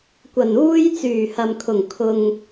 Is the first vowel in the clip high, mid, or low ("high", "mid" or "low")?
low